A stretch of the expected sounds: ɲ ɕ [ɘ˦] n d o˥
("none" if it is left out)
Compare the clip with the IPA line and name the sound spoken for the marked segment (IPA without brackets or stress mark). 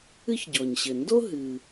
ɘ˩